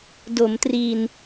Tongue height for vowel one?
mid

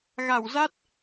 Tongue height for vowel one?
low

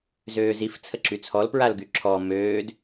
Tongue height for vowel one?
mid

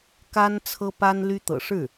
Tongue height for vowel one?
low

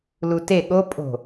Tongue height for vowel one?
high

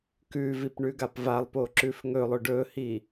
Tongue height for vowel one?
high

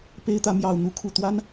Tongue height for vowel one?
mid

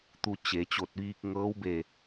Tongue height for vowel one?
high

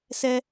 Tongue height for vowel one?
mid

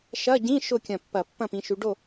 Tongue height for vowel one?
low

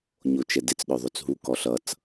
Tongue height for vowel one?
mid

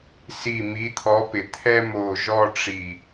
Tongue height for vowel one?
high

